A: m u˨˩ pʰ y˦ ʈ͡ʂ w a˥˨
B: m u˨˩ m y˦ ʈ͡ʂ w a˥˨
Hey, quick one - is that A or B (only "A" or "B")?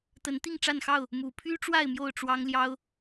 A